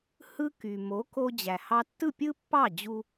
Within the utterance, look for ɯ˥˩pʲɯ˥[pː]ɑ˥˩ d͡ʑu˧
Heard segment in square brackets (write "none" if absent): pː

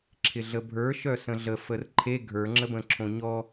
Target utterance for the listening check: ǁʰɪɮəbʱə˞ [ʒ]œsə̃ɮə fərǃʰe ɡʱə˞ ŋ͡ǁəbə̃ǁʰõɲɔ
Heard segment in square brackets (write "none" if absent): ʃ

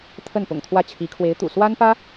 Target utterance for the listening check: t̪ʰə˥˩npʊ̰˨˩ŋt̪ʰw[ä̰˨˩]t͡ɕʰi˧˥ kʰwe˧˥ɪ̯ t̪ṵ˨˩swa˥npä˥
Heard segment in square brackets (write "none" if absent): ä˥˩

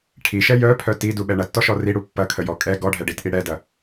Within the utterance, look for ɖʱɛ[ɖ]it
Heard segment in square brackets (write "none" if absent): ɖ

